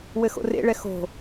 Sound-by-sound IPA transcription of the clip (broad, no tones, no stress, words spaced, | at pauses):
wɘxo̰rḛɭɛ xo̤